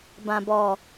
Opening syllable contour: low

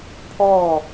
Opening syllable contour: falling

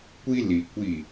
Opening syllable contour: high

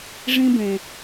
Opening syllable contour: high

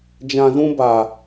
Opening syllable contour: low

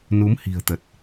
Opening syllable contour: rising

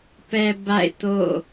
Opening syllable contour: low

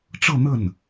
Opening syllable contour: falling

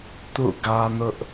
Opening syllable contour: falling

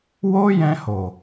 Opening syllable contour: high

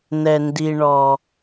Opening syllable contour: low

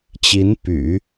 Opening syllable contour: rising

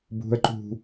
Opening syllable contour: high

